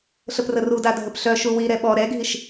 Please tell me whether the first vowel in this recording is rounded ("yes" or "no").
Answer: no